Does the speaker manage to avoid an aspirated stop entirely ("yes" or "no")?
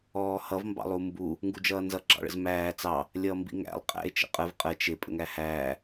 yes